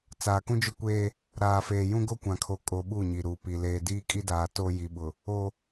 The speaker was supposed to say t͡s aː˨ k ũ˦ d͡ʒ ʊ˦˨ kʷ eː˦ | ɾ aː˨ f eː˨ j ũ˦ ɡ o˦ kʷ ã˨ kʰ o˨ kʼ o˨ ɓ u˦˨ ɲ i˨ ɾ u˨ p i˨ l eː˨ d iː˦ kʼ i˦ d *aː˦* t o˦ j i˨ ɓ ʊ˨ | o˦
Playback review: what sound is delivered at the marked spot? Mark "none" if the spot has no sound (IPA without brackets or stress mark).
aː˨